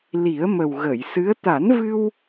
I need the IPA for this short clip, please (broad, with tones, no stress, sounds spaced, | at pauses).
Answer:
l i˨˩˦ ə̯ m ə˨˩ w ɣ ə˨˩˨ j s ɨ˧˥ ə̯ t̪ a˨˩˦ n v ɨ˧ w